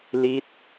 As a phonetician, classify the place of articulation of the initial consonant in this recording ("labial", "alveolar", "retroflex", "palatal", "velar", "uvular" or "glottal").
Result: alveolar